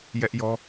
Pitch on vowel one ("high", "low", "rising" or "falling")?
high